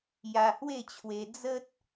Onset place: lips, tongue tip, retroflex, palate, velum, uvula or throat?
palate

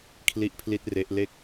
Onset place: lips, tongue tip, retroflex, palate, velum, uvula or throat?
velum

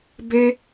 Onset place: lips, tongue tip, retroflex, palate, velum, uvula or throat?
lips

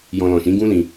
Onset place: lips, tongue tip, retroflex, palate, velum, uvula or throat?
palate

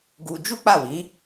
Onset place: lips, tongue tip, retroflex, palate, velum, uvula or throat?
velum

